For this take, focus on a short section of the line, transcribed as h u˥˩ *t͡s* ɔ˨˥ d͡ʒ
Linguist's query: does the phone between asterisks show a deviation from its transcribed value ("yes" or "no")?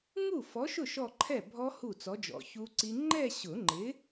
no